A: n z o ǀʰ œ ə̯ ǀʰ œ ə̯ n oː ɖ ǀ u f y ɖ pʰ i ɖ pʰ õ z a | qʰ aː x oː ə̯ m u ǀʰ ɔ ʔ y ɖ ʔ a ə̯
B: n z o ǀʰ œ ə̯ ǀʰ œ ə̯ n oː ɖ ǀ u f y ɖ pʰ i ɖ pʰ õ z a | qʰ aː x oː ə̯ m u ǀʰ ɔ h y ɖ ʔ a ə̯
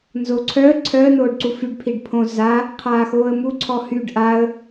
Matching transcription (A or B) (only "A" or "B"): B